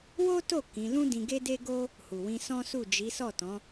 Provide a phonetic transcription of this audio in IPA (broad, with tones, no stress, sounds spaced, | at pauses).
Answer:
w o˦ t o˦˨ k ĩ˨˦ l ũ˦ d ĩ˧ ɡ e˦ d e˦ ɡ o˦ | h u˨ w ĩ˧ s ɔ̃˦ s u˦˨ d͡ʒ i˨˦ s ɔ˦˨ t ɔ̃˨˦